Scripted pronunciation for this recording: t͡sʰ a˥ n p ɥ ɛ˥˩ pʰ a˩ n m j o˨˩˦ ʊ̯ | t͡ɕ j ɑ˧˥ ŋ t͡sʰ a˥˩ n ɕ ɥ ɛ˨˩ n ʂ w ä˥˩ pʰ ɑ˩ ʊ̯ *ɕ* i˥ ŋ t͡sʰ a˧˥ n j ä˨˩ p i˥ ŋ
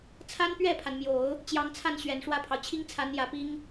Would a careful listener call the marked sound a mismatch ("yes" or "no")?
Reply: yes